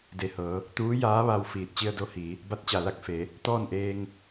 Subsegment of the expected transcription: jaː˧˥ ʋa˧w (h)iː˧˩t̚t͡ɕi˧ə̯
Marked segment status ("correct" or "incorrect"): incorrect